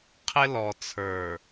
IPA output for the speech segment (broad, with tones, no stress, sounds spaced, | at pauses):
qʰ ɪ˦ l ɔ˨ t͡sʰ ə˞˨